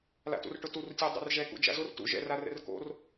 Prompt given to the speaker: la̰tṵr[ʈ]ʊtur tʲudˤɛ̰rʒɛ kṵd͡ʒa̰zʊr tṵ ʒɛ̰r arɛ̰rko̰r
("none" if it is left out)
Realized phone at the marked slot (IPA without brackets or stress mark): ʈ